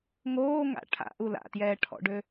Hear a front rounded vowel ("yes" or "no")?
yes